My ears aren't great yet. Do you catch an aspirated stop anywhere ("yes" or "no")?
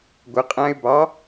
no